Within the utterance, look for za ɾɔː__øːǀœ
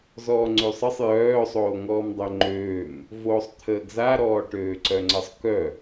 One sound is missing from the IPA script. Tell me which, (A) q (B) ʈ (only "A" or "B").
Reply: B